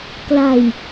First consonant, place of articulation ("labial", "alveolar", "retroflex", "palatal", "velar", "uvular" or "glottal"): velar